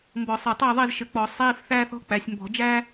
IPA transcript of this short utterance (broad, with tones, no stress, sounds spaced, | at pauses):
m b ɔ˧˩˧ sˤ ə˞˧˩ tˤ əː˥˩ ðˤ i˥˩ z ʃ ɘ˧˩ k͡p ɔ˧˩˧ sˤ iː˧˥˧ f θ æː˥ θ ɔ̤˥ k͡p æ˩˧ sʲ m b ɔ̤˧˩˧ d͡ʒ æ˥